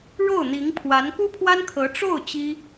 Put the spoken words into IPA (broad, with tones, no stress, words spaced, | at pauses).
ɻo˥˩ʊ̯ n̪i˧˥ŋpʰwa˧˥n ku˥pʰwa˥nkʰɤ˧˥ ʈ͡ʂo˥˩ʊ̯ t͡ɕi˥